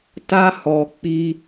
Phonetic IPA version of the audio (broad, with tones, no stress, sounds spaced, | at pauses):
t a˦ h ɔ˧ k͡p i˦